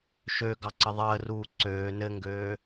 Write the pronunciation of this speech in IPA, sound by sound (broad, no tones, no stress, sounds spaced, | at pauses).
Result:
ʃ ø ɡ ɑ ǀ ə ðˤ əː r uː ǀ øː n ɘ ŋ ɡ øː